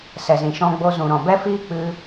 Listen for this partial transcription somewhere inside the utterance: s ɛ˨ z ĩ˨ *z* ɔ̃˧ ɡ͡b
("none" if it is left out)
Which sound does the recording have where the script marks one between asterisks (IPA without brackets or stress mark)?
ʃ